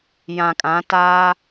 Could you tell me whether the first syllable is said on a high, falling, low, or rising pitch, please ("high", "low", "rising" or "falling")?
low